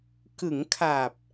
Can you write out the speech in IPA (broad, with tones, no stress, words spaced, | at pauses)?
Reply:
kɯ˩˦ŋkʰa˨˩p̚